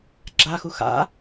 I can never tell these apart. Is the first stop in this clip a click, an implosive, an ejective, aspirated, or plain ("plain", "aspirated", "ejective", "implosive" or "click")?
click